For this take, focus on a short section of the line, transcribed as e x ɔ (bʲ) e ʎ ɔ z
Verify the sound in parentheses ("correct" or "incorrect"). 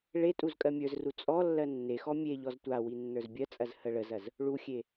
incorrect